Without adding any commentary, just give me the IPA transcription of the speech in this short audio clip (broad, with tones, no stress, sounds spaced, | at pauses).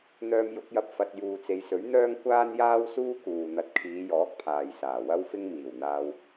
n̪ œː˧ m j ʊ˨˥ k̚ j ɐ˧ p̚ f ɐ˨ t̚ j uː˨ t͡s e˨˧ j s ɵ˨˥ ɥ n̪ œː˥ ŋ kʷ aː˥ n j aː˥ w s uː˥ k uː˨ n̪ ɐ˨ t̚ kʰ iː˨˧ j ɔː˨˥ k̚ pʰ aː˨ j s aː˨˩ w ɐ˥ w f ɪ˥ ŋ m iː˨˩ w n̪ aː˧ w